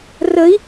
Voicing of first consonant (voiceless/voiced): voiced